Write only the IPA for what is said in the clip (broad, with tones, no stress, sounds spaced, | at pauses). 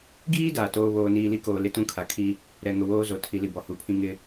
ɡ iː˦ d aː˨ t oː˦ β oː˨ n iː˨ l i˦ k oː˨ l ɪ˦ t ũ˦ kʰ a˨ kʰ i˦ | ɾ ɛ˨ ŋ ʊ˨ w oː˦ z o˨ tʰ i˨ l i˨ b ɔ˨ h u˨˦ pʰ ĩ˦ ŋ ɪ˦